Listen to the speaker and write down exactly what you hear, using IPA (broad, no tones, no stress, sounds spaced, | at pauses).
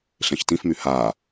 ɬ ẽ ç t ĩ f m y h aː